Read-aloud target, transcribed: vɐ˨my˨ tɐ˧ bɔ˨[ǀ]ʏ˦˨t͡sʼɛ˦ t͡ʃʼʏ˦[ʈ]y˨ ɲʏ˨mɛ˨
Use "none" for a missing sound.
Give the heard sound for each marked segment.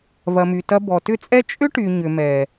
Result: t, ʈ

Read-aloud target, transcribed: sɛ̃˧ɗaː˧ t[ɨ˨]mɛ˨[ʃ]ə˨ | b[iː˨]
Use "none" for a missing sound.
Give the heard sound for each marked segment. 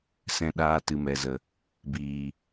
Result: ɨ˨, z, iː˨

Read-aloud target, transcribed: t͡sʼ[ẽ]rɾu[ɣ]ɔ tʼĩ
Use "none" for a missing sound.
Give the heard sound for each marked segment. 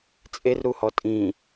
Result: e, h

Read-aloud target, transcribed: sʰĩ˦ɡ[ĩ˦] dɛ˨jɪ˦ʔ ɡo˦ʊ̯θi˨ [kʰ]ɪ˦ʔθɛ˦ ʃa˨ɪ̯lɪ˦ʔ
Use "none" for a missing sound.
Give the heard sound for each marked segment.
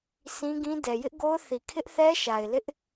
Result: ĩ˦, kʰ

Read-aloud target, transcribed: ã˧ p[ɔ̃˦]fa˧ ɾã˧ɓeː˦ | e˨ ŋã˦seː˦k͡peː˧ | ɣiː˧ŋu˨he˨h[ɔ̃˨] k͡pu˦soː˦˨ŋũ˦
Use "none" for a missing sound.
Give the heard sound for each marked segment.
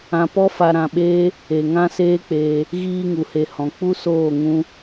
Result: ɔ˦, ɔ̃˨

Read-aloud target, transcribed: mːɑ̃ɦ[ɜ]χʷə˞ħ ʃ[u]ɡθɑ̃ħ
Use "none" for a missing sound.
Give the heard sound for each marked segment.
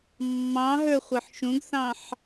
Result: ə˞, ũ

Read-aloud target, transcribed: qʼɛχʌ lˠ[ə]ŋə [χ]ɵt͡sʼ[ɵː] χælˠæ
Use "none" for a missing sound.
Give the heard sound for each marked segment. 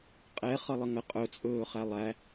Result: ə, qʼ, ɵː

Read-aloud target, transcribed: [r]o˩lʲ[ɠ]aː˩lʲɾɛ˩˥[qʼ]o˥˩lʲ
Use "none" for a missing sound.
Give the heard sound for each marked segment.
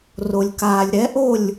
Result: r, k, ʔ

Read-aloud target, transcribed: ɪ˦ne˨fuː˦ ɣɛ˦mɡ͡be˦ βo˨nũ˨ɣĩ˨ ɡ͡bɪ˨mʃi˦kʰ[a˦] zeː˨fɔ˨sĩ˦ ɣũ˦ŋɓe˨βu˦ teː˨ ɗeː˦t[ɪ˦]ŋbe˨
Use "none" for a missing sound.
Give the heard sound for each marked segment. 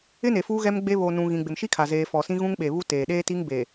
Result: a˨, i˦

